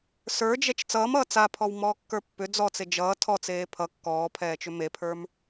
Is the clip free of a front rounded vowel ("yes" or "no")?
no